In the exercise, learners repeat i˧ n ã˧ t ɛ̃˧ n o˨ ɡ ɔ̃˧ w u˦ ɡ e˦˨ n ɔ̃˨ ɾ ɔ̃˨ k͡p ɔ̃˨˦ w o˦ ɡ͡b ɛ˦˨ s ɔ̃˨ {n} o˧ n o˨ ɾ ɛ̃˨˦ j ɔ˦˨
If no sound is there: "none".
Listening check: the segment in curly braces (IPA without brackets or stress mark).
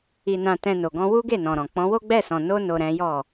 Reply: n